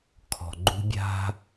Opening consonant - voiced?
no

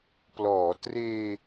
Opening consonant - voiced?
no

